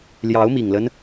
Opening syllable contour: rising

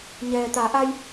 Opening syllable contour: low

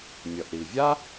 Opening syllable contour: low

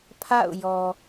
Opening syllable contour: falling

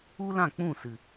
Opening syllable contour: high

